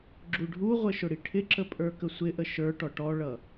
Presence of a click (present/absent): present